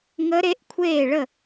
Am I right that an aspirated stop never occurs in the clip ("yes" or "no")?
no